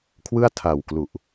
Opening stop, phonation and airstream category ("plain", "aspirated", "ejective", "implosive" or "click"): aspirated